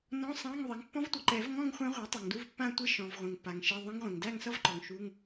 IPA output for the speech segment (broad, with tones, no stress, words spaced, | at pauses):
nɔ̃˧˥˧sˤã˧˥˧ŋ ðˤe˩˥ŋpːɔ̃˦˥vtʷʌ˩ǃɛ˨˩˦v ŋɔ̃˥˧ŋ χʷã˦˥ʁʷa˩˥ tˤʌ˩ŋdu˧˥˧vpːã˥˧tʷe˥˧ ʃɔ̃˩v ʁʷẽ˩ŋpːa˩ŋʃe˧˥˧ ðˤẽ˦˥ŋʁʷẽ˩ŋ dæ˥˧ŋsʌ˥˧vǃɔ˩ŋ ʃu˧˥˧ŋ